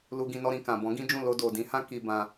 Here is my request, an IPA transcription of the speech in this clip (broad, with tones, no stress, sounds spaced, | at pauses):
l u˧ ɡ ĩ˧ n ɔ˧ ɾ ĩ˨ k ã˨ b ɔ̃˨˦ ɡ ĩ˦ d͡ʒ ũ˦˨ l o˧ d o˨ d ĩ˨˦ h ã˦ k i˧ b ã˧